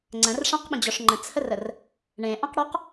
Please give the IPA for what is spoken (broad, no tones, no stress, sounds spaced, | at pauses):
ŋ͡ǀ ə̃ r ʂ ã q ɓ ə̃ d͡ʑ ɔ ʂ ŋ͡ǃ ə̃ t͡sʰ ə r ə r | ɳ ẽ ʔ ã q ɽ ɔ q